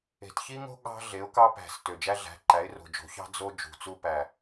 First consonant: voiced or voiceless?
voiceless